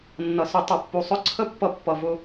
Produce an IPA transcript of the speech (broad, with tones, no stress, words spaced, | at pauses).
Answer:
nːʌ˨sʊ˧ tˤʌ˨pːu˨sˤʊ˦ǀʰə˦ pːʌ˧pːʌ˨vʊ˧